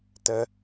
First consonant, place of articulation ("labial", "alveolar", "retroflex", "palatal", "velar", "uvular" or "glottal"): alveolar